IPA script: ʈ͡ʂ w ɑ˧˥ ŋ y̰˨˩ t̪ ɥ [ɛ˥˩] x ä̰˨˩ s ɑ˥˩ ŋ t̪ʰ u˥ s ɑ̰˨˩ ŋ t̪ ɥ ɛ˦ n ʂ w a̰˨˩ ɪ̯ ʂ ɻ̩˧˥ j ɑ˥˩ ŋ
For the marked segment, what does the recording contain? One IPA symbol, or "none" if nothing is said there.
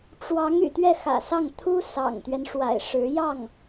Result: ɛ˥˩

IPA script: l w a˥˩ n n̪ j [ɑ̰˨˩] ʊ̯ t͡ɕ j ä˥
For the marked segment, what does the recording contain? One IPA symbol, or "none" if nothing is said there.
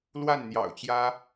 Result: ɑ̰˨˩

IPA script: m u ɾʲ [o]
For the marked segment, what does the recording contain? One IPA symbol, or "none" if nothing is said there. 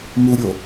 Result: o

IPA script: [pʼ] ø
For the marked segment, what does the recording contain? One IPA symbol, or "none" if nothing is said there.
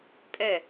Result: pʼ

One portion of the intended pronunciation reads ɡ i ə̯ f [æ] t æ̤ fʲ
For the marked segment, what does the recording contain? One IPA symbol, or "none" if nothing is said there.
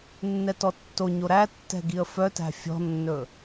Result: œ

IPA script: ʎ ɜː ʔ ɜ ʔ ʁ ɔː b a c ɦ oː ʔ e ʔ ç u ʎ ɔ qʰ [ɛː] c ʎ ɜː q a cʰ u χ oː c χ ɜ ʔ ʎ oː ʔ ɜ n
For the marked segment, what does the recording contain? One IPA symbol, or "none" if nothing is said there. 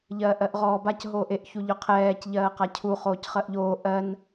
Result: ɛː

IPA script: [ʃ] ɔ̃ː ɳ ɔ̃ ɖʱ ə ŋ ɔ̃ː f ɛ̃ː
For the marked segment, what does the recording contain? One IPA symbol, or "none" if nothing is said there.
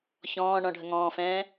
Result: ç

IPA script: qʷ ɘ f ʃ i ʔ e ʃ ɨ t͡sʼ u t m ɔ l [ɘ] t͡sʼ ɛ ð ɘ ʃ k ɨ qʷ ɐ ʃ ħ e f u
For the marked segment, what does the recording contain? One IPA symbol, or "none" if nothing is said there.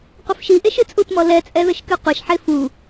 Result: ɛ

